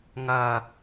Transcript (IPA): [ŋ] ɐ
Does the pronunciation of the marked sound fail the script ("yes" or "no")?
no